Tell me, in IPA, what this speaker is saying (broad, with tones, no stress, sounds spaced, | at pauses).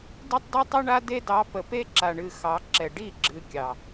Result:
d i˦ tˤ d ɨ˦ tˤ ɨ˦ ɳ a˦ d e˦ d ɑ˨˦ p ə˨ p e˦ ǁ a˨ ɳ ɨ˨ x ɑ˨˦ ǁ ɛ˨ ɖ i˦˨ ɡ͡ǁ ɨ˨ kʲ ɑ˨